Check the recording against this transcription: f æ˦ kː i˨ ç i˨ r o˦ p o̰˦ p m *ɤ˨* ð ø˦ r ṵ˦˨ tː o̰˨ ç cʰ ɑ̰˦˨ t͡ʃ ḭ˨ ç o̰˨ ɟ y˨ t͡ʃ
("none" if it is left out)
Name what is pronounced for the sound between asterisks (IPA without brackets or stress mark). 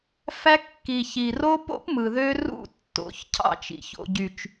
ɯ˨